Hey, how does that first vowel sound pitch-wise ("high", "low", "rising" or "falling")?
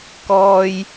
high